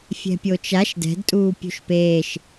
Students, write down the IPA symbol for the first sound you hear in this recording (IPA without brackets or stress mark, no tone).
fʲ